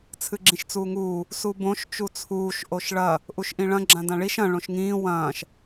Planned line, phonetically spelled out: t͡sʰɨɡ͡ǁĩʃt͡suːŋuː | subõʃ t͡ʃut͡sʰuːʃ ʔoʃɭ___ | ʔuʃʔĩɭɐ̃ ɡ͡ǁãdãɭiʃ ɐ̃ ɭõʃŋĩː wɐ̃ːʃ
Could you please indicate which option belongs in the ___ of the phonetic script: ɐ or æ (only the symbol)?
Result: ɐ